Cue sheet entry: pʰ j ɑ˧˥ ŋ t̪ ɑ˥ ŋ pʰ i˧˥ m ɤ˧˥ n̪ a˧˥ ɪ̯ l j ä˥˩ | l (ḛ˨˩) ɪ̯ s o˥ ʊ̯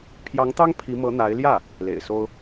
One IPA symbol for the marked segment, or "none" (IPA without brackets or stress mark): ḛ˨˩